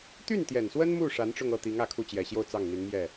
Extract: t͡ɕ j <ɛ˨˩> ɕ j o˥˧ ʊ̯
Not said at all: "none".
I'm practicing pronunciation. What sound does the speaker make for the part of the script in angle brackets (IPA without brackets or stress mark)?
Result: ɛ˨˩